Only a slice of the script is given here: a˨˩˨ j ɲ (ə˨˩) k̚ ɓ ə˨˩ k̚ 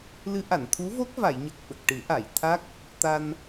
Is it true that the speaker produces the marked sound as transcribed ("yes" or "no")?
yes